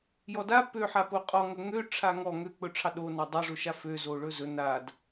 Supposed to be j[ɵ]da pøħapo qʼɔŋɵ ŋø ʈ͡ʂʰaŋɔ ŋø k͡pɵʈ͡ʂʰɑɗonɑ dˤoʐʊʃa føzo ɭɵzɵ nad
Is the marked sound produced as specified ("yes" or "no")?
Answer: no